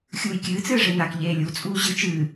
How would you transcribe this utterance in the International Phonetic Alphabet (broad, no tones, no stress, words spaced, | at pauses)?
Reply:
xʲuːjkʲɨː t͡sɨːʐenak ʎeːlʲut͡sʼuː ʑɨ t͡ʃɨː